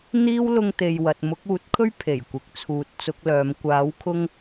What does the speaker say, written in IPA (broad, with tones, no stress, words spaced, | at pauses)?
n̪iː˥w lʊ˧ŋt̪e˨jwɐ˨t̚ mʊ˨˥k̚uː˨˥t̚kʰɵ˥ɥ pʰe˨˩jkʷɪ˨k̚t͡sʰuː˨˥t̚ t͡sʊ˨˥k̚lœː˨˧m kʷaː˨˥wkʰʊ˥ŋ